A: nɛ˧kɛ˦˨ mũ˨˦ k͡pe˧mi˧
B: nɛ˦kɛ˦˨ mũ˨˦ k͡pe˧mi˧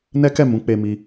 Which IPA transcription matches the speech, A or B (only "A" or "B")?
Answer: B